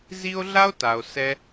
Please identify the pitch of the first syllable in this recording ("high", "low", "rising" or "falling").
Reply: high